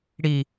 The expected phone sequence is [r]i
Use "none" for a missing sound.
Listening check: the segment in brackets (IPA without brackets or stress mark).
ɽ